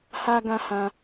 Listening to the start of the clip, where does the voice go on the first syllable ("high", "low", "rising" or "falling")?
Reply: high